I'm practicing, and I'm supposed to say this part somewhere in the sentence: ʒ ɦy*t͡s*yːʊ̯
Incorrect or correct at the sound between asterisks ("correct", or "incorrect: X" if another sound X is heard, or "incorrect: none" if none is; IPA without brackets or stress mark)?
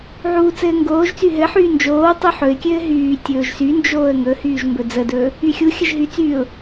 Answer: correct